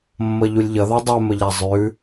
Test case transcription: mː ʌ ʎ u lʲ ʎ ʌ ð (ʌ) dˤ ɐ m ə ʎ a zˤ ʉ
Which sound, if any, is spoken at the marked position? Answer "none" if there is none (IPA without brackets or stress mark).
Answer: a